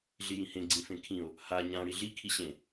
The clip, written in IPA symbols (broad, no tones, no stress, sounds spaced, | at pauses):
ɮ i j ĩ h ẽ ɡ͡ǀ ĩ f ẽ kʰ ĩ o̯ | h a ɲ ã ɽ i ɮ i kʰ i ɕ ẽ